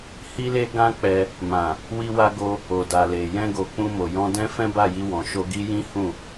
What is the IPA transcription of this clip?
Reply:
h i˦ l e˦ ɡ ã˦ k͡p ɛ˧ | m ã˨ | w i˦ w a˦ ɡ o˦ | o˨ d a˨ l e˨ j ɛ̃˧ ɡ o˨ k͡p ũ˧ m o˨ j ɔ̃˧ d ɛ̃˦ f ɛ̃˦ b a˦˨ j i˧ w ɔ̃˨ ʃ o˧ ɡ i˦ j ĩ˦ h ũ˦˨

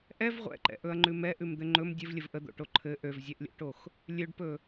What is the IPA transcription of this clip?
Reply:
ʔ ɛ v ʁʷ ɛ̰ ǃ ɛ̰ ʔ ɵ ɐ̯ ŋ͡ǃ ʉ m ɛ ʔ ʉ m d̪ ɘ ŋ͡ǃ ɵ m dʲ ɘ v lʲ ə v ʔ ə d̪ o̰ ʈ o ǃʰ ɘ ʔ ø v zʲ ɛ ʔ lʲ o̰ ʈ o x | lʲ ø ɖ p ɵ

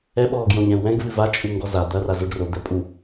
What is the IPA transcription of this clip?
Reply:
ɛ ɓ ɔː ɡ j õ ʎ ɛ̃ u̯ w ɛ̃ ɡ v ɨ v a t͡ʃʼ u ŋ ɡ ɔ z a d̪ ɐ r a z o ɖ r o d̪ ɛ pʼ u

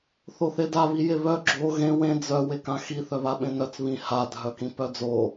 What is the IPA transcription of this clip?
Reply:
θ o θ e d a β i j e β œ ɡ͡ǁ o ɣ ẽ w ẽ d͡z œ w e k ã x i θ œ β a ɓ ẽ n œ t͡s β ĩ h a dʱ œ k ĩ p œ d͡z o

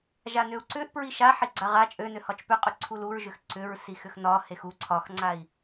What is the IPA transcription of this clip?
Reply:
ʒ a n ø u̯ ǀ ʏ ʔ p ɹ i ʃ a ħ i ɡ͡ǀ a ʁ a t͡ʃʼ ø n ø h ɒ t͡ʃ p ʏ qʼ ʏ ǀʰ u l u ɹ ʒ ʏ x ǀ ʏ ɹ s i x ʏ x n ɒ h e x u ǀʰ ɒ x ŋ͡ǀ a i̯

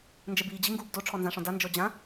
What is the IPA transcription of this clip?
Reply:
n d͡ʒ ɛ b iː d͡ʑ i ŋ ɡ uː b d o ʈ͡ʂʰ ɔ n z ã ʂ ɔ̃ d a n d͡ʒ ɔ d͡ʑ ã

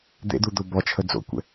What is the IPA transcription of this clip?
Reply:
d̪ ḛ d̪ u d̪ o b ɔ t͡ʃʰ ə d͡z o̰ kʷ ɛ̰

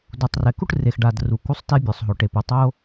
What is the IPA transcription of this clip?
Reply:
d u˩ tˤ r ɛ˩ k u˥ ʈ r e˩ x ɖ a˩ d r u˩ k u˥ sˤ t e˥ bʲ o˩ sˤ ɦ o˩ ʈ e˩ p u˩ tˤ o˥

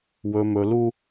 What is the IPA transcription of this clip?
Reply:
w ɵ˨ m ɵ˨ l u˦

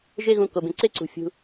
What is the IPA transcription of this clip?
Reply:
ʒ e˦ ɣ ũ˨ k o˩ b ẽ˩ ǀ e˥ ǀ ṳ˩ fʲ ṳ˩

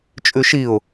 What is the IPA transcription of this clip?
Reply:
t͡ʃʼ ʉ ʃ i ʊ̯

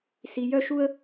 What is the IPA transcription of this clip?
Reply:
s i˧ j œ˥ ʃ u˥ ə̯

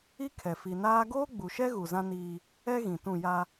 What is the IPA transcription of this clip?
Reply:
i˦ kʰ ɛ˨ f i˨ n aː˦ ɡ oː˦ ɡ͡b u˨ ʃ ɛ˦ ɣ u˨ z ã˦ n iː˦ | ɛ˦ ɣ ĩ˨ t ũ˦˨ j a˦

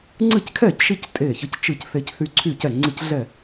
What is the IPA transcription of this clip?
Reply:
ŋ͡ǀ ɨ˥˩ c kʰ ɛ˥˩ c ʃ i˦ c tʼ e˥˩ ç ə˦ c t͡ʃ ɨ˥˩ c θ e˦ c θ y˦ ǀʰ y˥˩ c ɛ˥˩ ŋ͡ǀ i˥˩ c ɮ ɛ˥˩

